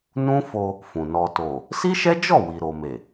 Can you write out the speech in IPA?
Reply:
nũ˦fo˧ | fũ˨nɔ˧ to˨ | si˦ʃɛ˦d͡ʒɔ˦˨ wi˨ɾo˨me˨

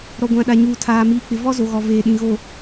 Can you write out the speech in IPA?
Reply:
ɾɔ˨ɡʷã˨ɗa˨ ɲuː˨tʰaː˨ miː˨k͡pɪ˨ vɔ˦zo˨ɣɔ˨ veː˨ɗĩ˨ɣo˨

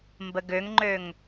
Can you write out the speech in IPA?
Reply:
mbəɡøŋŋ͡ǃøŋ

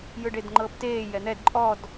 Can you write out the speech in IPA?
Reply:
jɯɖedŋ͡ǃɤːpteː jɛn̪ɛd ǃʼɔd

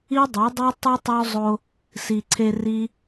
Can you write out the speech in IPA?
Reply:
i˦ dˤe˨˦dˤe˦ tˤu˦tˤo˦ zˤo˧ | si˨ǀʰe˧ ri˦

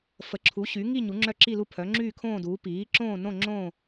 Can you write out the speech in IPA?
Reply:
fə˨˥ǁʰu˨˥ɕy˨˥ ŋi˥˧ ɲu˨˥ŋ͡ǁœ˥˧ǁi˥˧lu˥˧ pʰœ˨˥ ŋ͡ǁyː˥˧kʰõː˥˧duː˨˥ piː˨˥ ǁõː˥˧nõ˥˧ŋ͡ǁõː˥˧

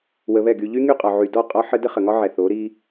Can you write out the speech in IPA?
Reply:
wə˧βɛ˦˨ɡy˧ ʎy˦ŋy˦˨qʼɒ˨ʕy˨ dɔ˦˨ qʼɒ˦ħə˦ də˦χə˨ŋɒ˦ʕɛ˨ θo˨˦ɾi˦

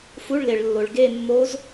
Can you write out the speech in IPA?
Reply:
fu˧˥˧ɭle˨ɭlːo˨ɭ ɡe˥˧mːo˦˥z

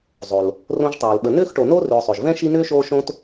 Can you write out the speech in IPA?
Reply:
zˤo˩l | rõ˦ʒtˤoː˩lɓə˨ nʏː˥xʈo˨no˥ rʏ˨ʊ̯sˤʏː˩ʒ vɛ̃˥ʃi˦nʏː˥ʃoː˦ ʃõ˥t

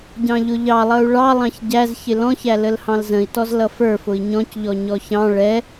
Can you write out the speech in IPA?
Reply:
ɟɑ̃ʎʊʎɑlˠʌu̯ ɭɑlˠɑ̃ç ɟæz çɪlɔ̃çæ ləlhɑ̃lzə̃i̯tɔz lʌfə˞ fʊi̯ɲɔ̃cʎɔ ɲɔçɑ̃ ɭɛ

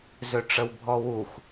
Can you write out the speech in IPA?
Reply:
zøʈ͡ʂəwbʱɔwux

